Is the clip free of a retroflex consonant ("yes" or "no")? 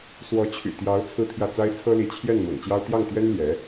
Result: yes